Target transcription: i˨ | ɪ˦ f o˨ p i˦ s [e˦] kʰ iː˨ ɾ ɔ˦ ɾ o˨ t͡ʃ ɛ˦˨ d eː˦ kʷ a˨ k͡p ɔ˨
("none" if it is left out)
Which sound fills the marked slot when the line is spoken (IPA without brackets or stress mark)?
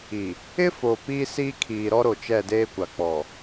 i˦